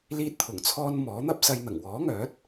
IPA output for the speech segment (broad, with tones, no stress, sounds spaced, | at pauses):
l iː˧ t̚ t̪ʰ ʊ˨˩ ŋ t͡sʰ ɔː˧ n m ɔː˨˥ n̪ ɐ˥ p̚ s ɐ˧ j n̪ ɐ˨˩ ŋ w ɔː˨˥ ŋ œː˨˥ t̚